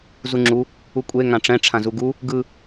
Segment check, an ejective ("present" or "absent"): present